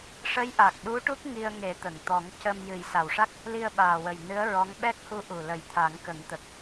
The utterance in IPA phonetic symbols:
ʂ ə˧˥ j ʔ a˨˩ k̚ ɗ u˧˥ ʈ u˦˥ k̚ ŋ i˧ ə̯ ŋ e˨˩˦ t̪ ə˨˩˨ ŋ t̪ ɔ˨˩˦ ŋ c ə˧ m j ɨ˨˩˦ j s a˨˩ w ʂ a˦˥ k̚ | l i˧ ə̯ ɓ aː˨˩ w ə˨˩ j n ɨ˧˥ ə̯ ɹ ɔ˧˥ ŋ ɓ ɛ˦˥ k̚ h u˧˥ ʔ u˨˩ l ə˨˩˦ j t̪ʰ a˨˩˦ ŋ k ə˨˩˦ ŋ t̪ ə˨˩ k̚

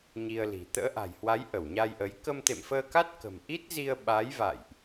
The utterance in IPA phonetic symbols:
ɲ i˧ ə̯ l i̤˨˩ t̪ ə̰ː˧˥ ʔ a̤˨˩ j h w a˨˦ j ʔ ə˧˩ w ɲ a˧ j ʔ ə˨˦ j k ə˧ m t̪ ḛ˧˨ m f əː˧ k a˦˥ t̚ k ə̤˨˩ m ʔ i˦˥ t̚ z i˧ ə̯ ɓ a˨˦ j v a̰˧˨ j ʔ

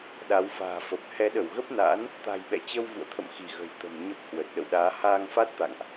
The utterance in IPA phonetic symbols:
ɗ a˨˦ w f a̤ː˨˩ f ə˨˩ p̚ h ɛ˨˦ ɗ ə˧˩ w ɣ ə˦˥ p̚ n a̰ː˧˥ n | t̪ a̤˨˩ j ɓ ɛ̰˧˨ t͡ɕ ə˧ w v ṵ˧˨ ə̯ t̪ʰ ə̰˧˨ m x i˧˩ ɣ ə̤˨˩ j t̪ ə̤˨˩ m ɲ ə˦˥ p̚ h w ə˨˩ t̚ ɗ ə̰˧˨ w ɗ aː˨˦ h aː˧ ŋ f a˦˥ t̚ t̪ a̰˧˨ ŋ ʔ

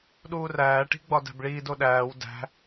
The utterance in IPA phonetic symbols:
ɗ uː r æː ʈ i̤ ɡ͡b ɒ d æ̤ b ɭ iː d o ɗ æː w d æ̤

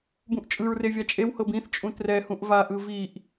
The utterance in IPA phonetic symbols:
b ũ ʔ t͡ʃʼ ɯ ɹ r e vʲ a t͡ʃʼ e w h ɤ b ĩ θ t͡ʃʼ ũ t r ɛ h ũ ʔ v a ʔ ɯ v i ʔ

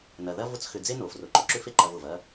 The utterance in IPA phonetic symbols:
n ɐ˨ ð ɐ˦ v ʊ˦ t͡s x ʏ˧ d͡z e˦ n o˨ f r ʊ˨ ǃ ʊ˧ ǁ ʏ˦ f e˦ ǃ ɐ˧ v ʊ˨ v ɐ˦

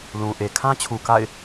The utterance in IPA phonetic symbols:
l ũ˨ ʔ e˨ kʰ ã˦ t͡ɕʰ u˨ k a̰˦˨ ɪ̯

